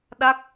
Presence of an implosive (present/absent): present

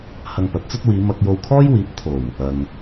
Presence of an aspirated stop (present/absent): present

